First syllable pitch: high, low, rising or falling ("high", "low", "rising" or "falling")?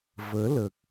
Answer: rising